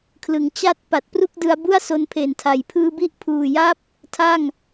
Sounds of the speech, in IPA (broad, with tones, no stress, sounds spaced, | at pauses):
kʰ l ɯ˩˦ ŋ t͡ɕ a˥˩ t̚ p a˨˩ t̚ p r u˥˩ k̚ d ɯ˧ a̯ b u˥˩ a̯ s o˧ n pʰ e˨˩ n tʰ a˩˦ j pʰ ɯː˧ b i˦˥ ʔ pʰ uː˨˩ j a˦˥ p̚ | tʰ a˥˩ ŋ